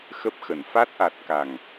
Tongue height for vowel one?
mid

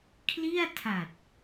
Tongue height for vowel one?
high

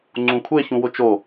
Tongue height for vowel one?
high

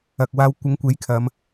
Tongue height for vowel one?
low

